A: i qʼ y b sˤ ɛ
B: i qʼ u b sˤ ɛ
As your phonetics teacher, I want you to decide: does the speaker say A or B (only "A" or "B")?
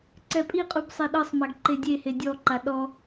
B